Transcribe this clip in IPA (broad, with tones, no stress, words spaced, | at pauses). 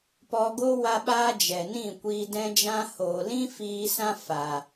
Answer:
pɔ˧ɡo˦ wa˦ɓaː˦ d͡ʒɛ˨nĩ˦˨ kʷiː˧dɛ̃˦ d͡ʒã˦ hoː˨lĩ˦ fiː˧sã˦ fa˨